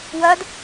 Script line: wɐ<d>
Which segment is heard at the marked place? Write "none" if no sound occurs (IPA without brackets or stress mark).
d